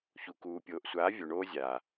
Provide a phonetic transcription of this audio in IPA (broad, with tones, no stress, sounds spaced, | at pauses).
ç u˨ k uː˨ pʲ oː˨ ʔ sʷ aː˨˦ vʲ o˨ ɳ oː˦ zʲ aː˨